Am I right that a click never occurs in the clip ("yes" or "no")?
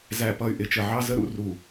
yes